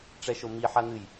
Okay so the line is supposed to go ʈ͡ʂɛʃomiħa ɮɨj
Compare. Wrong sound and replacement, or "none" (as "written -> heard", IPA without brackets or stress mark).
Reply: ɮ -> n̪